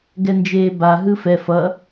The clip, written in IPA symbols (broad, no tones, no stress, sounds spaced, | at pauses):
ɡ ɛ n d͡ʒ eː b a ɦ ɯ f ɛ f ʌ